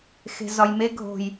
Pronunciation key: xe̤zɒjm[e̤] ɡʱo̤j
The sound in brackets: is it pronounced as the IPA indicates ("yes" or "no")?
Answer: no